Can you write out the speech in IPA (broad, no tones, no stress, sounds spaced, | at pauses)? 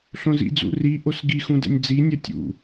ɬ õ z ḭ d͡z ṵ r i ʔ o s ɡ i x ũ d ɛ̰ nʲ d͡z i nʲ ɜ tʲ ṵ